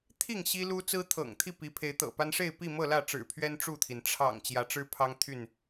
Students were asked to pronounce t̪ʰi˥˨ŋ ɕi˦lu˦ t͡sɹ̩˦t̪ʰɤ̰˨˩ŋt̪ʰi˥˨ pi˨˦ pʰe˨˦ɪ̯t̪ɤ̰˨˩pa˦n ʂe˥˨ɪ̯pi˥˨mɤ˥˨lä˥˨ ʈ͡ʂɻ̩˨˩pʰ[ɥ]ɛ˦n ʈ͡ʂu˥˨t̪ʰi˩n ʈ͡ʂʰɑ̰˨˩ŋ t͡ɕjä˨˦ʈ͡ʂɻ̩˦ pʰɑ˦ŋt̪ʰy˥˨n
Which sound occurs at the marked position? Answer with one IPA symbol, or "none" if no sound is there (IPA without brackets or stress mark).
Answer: ɥ